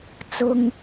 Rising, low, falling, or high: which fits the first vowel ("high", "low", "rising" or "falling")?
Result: high